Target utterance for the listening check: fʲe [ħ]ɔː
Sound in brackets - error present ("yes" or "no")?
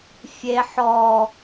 no